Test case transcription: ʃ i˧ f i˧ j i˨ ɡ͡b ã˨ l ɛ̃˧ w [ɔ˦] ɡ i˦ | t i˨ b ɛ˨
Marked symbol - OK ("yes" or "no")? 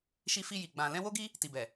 no